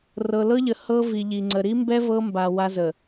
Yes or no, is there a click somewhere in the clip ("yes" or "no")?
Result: yes